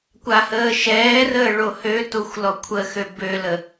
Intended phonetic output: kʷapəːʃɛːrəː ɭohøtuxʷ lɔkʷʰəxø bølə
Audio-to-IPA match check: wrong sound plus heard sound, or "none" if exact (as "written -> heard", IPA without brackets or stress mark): p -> h